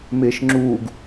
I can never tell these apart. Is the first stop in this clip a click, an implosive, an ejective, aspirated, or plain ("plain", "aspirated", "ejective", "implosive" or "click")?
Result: click